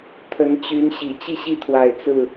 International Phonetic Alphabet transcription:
t̪ʰə˨˦nt͡ɕy˨˦nɕi˨˩ t͡ɕi˥˨ɕi˦t̪ʰwa˨˩ɪ̯ t͡sɹ̩˥˨

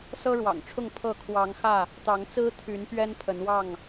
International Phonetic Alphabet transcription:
sɤ˦ɻwɑ̰˨˩ŋʈ͡ʂʰʊ˥˨ŋ pʰɤ˥˨ kʰwɑ˨˦ŋ xä˥˨ | t̪ɑ˨˦ŋt͡sɹ̩˦t̪ʰy˨˦n pɥɛ˦npʰə˨˦nwɑ˥˨ŋ

